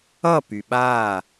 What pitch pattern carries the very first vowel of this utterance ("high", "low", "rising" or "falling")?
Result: falling